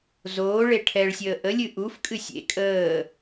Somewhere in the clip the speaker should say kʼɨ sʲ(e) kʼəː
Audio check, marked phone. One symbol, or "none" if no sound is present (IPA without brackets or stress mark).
ḛ